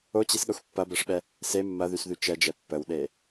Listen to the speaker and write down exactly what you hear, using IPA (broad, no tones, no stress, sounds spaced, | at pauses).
o t͡ɕ i s ɠ ɐ xʷ pː ɐ b ɛ ʂ ɓ ɛ | s e mː ɐ ð y s ð y t͡ʃ ɛ d͡ʒ ɛ pː ə w ɗ e